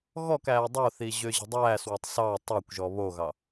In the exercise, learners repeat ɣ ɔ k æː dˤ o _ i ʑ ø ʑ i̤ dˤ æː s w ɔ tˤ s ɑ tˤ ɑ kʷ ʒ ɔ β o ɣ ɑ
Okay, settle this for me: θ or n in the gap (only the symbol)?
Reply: θ